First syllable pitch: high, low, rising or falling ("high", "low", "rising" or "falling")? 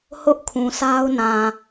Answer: high